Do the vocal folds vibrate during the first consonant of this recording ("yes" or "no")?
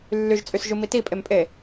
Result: yes